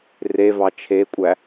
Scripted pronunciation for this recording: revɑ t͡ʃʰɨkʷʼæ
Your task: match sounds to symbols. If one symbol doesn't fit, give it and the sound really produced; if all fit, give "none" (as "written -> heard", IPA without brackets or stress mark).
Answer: ɨ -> e